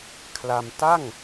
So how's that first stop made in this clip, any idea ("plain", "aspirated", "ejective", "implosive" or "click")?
aspirated